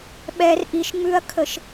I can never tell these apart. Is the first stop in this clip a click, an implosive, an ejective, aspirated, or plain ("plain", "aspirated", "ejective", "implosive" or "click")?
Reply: implosive